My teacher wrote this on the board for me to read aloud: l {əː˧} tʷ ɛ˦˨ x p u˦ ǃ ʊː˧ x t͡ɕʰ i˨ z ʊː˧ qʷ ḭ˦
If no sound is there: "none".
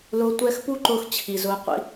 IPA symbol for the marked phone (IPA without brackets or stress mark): ʊː˧